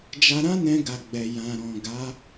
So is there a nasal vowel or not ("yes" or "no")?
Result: yes